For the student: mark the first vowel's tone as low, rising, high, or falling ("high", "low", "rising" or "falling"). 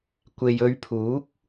low